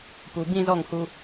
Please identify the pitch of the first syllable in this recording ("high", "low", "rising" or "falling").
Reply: low